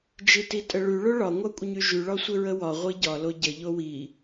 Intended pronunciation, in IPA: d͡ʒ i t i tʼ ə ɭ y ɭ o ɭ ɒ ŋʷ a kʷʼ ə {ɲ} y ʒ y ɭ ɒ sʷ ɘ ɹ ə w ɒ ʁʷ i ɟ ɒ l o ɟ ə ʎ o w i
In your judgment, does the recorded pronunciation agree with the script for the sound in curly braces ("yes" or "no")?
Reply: yes